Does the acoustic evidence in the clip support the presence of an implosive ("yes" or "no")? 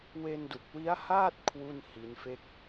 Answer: no